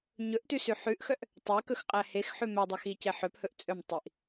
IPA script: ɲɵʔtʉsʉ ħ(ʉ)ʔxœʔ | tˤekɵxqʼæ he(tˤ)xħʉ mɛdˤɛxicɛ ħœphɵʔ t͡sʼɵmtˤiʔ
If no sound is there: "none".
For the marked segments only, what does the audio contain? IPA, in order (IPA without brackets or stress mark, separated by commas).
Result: ʉ, none